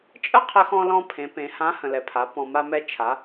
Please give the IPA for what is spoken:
t͡ʃʼ ə˥ qʰ ə˧ x ɔ̃˧ l ɔ̃˧ pʰ ẽ˩˧ p ẽ˩˧ h ã˧˥ h ə̃˩ l ɛ˩ pʰ a˩˧ p ɔ̃˩ m a˧ m ɛ˧ t͡ʃʰ a˩˧

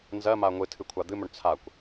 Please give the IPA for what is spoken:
n z ɜ m a ŋʷ ɨ tʰ ɨ kʷʰ a d̪ ɨ m ɵ ɳ t͡sʰ a kʷ

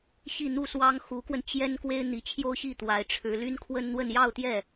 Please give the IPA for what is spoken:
ɕ i˥˧ n̪ u˥˩ s w ɑ˥ ŋ x u˧˥ k w ə˧ n t͡ɕ j ɛ˥ n k w e˥ ɪ̯ n̪ i˧˥ t͡ɕʰ j o˥ ʊ̯ ɕ i˥˩ t̪ w a˧˥ ɪ̯ ʈ͡ʂʰ ɻ̩˧˥ l y˥ n kʰ w ə˥ n n̪ w ə˥˧ n j ɑ˥˧ ʊ̯ t̪ j ɛ˥˩

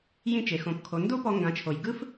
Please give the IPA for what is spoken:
j ĩ˧ t͡ʃ e˩ x õ˩˧ p kʰ o˩˧ n d o˥ p ɔ˧ ŋ ɡ ã˩˧ t͡ʃʰ o˩ j ɡ ɯ˥ f

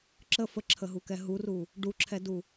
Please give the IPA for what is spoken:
ǁ ə f ə ǁʰ ə ɦ u k ɛ ɦ u r u | ɖ u ǁʰ ɛ d u

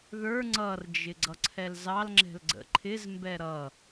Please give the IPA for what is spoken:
ð ə˞ ŋ͡ǀ ʌ r d͡ʒ ɪ ɡ͡ǀ ʌ ǀʰ ɛ l z ɑ l ŋ͡ǁ ɛ̤ l ɡ͡ǀ ə̰ ǃʰ ɪ z m b ɛ ɾ ʌ

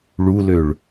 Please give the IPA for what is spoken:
ɭ u l ø ɭ

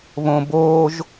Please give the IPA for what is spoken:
β õ b oː ʒ

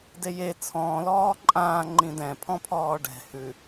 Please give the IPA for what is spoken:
d e j e t͡sʰ ɔ̃ː l ɔː ǃʼ ãː ŋ͡ǃ ĩ d ɛ̃ pʰ ɔ̃ pʰ ɔː ɖ ɛ̤ h ʉ

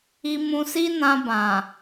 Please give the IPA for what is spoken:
i˧ m ũ˧ s i˦ n ã˧ b ã˨

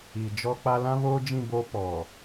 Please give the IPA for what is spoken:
i˨ d͡ʒ ɔ˦ k͡p a˦ l ã˦ β oː˦ d͡ʒ ĩ˦˨ b oː˦ p ɔ˨

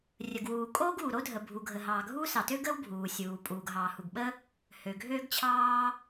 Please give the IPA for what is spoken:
rʲ ə˩ ɡ w uː˩ kʼ oː˥ ɡ uː˩ ɾ o˥ dʱ ə˩ bʱ u˩ ɡʱ ə˩ ɦ ɑː˩ ɡʱ uː˥ s ɑ˩ t ø˥ ɡ əː˥ w bʱ uː˩ sʲ uː˩ pʼ uː˩ ɡ ɦ ɑː˩ h u˩ ɡ ɓ ə˥ | h ø˩ ɡʱ øː˥ ɡ t͡ɕʰ ɑː˥

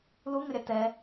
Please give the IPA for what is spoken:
l u ŋ ə ɾʲ a t ɛ

